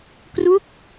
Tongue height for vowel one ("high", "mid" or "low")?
high